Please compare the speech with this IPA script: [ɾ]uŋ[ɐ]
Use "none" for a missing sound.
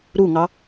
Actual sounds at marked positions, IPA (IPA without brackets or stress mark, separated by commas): ɾ, ɑ